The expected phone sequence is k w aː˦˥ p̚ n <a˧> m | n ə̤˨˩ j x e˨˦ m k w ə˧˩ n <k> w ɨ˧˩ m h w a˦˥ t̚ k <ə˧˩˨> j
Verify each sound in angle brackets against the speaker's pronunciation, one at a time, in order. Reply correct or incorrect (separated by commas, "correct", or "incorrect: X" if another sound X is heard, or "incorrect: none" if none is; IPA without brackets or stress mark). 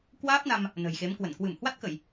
correct, correct, correct